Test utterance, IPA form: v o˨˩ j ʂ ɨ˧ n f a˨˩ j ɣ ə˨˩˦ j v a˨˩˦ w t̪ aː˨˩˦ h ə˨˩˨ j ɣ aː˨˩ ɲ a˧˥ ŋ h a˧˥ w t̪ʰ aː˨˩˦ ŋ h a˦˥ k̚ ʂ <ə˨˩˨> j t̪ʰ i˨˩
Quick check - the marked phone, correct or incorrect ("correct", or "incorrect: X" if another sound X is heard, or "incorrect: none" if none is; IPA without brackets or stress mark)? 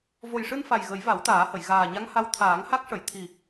correct